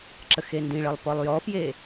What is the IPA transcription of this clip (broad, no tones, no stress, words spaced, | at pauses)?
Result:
ǁəxendĩɭəlˠ pɔlˠjɔfje